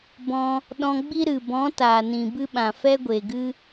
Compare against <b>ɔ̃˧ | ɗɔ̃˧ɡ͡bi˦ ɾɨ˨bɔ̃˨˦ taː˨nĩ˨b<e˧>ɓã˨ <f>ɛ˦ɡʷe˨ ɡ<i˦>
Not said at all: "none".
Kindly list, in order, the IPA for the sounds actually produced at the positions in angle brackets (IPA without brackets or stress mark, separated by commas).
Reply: b, ɨ˧, f, ɨ˦